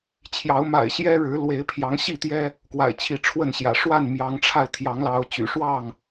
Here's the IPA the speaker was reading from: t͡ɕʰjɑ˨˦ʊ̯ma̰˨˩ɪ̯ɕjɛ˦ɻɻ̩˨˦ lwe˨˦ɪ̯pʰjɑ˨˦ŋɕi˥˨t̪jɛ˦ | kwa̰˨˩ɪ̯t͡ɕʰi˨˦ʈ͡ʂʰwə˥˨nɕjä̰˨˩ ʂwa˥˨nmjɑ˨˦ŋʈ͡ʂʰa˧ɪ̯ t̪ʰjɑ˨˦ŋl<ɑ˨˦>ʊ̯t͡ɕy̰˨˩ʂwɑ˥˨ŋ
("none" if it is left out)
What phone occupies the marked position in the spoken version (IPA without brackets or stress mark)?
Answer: ɑ˨˦